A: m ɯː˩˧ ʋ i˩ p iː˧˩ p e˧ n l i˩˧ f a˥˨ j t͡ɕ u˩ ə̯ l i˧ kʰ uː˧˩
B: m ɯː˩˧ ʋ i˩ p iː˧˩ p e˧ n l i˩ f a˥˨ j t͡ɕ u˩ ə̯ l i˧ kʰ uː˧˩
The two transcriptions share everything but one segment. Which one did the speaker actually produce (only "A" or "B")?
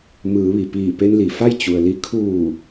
B